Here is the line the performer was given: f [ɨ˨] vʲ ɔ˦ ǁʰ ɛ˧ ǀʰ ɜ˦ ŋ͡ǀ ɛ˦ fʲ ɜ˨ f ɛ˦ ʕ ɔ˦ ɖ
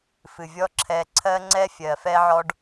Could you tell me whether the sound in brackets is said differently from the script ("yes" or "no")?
no